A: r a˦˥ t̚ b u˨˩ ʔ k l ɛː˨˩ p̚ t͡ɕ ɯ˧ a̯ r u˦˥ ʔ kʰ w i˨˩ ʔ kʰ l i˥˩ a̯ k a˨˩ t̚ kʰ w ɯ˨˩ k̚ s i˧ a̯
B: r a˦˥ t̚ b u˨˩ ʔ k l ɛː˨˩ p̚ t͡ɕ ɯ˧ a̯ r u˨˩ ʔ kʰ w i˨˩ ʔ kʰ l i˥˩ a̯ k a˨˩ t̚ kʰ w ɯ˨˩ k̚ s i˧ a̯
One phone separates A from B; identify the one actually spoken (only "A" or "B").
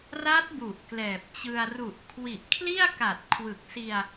B